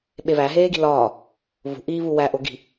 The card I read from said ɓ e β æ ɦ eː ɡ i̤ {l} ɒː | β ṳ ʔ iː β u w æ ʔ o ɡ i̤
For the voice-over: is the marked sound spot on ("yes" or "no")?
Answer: yes